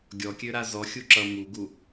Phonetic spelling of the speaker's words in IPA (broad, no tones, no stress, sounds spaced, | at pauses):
ɡʲ ɔ kʲ ø ɾ a z ɔ xʲ u ǁ ʌ m u ɡ u